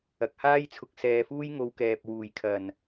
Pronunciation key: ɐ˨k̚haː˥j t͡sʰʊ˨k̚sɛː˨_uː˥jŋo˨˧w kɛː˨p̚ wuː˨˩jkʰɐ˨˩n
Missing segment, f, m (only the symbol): f